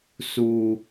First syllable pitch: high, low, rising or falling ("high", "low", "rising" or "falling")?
low